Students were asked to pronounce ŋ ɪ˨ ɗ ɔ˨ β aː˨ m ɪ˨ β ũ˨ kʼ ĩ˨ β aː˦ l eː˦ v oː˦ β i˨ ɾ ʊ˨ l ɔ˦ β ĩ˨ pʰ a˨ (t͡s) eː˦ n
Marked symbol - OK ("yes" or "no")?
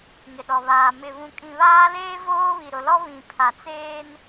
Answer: yes